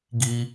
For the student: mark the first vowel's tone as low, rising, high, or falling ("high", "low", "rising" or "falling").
high